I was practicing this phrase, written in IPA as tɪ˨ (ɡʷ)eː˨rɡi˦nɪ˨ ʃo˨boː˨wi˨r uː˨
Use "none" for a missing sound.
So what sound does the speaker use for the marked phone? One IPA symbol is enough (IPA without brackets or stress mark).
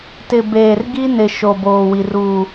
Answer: b